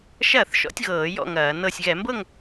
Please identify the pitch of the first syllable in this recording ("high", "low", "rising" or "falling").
falling